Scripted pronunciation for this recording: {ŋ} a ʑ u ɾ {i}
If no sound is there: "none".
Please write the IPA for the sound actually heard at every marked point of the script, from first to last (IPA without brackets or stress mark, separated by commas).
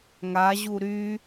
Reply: ŋ, y